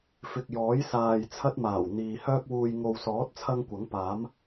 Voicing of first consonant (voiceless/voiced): voiceless